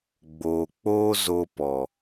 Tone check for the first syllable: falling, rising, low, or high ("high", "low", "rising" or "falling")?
low